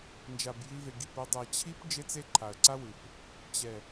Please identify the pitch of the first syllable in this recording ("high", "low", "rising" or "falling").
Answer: low